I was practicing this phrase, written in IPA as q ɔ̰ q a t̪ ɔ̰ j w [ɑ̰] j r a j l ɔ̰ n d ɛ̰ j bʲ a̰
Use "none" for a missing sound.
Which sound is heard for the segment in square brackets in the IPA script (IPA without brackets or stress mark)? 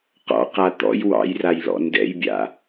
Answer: ɑ̰